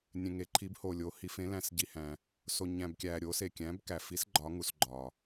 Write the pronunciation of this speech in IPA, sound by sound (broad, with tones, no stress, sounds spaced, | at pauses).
nʲ ẽ˨ ŋ e˨˦ ǃʰ i˨˦ b h o˨ lʲ o˨˦ h i˨˦ f ẽ˨˦ l æ̃˨ s ɟ i˨ h æ̃˨ | s o˨ ɲ æ̃˨ b kʲ æ˨ ɾʲ o˨˦ s e˨ kʲ æ̃˨˦ b k æ˨ f i˨˦ s ɡ͡ǃ ɒ˨˦ ŋ u˨ s ɡ͡ǃ ɒ˨